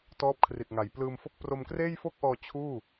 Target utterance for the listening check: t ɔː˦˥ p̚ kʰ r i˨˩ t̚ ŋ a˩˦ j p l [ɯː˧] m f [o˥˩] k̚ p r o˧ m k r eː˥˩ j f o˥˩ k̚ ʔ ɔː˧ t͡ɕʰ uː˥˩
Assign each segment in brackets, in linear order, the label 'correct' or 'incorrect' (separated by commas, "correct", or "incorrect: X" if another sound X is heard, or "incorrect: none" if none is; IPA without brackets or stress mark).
correct, correct